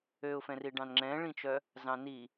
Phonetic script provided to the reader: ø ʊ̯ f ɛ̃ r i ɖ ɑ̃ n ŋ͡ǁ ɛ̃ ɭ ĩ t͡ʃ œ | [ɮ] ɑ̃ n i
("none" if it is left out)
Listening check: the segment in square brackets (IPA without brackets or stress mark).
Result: z